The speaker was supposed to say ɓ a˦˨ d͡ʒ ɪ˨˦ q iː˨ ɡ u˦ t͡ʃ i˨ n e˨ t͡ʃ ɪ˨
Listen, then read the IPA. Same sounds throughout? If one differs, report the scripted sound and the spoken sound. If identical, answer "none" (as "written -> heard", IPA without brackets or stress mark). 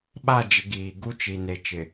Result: q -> ɡ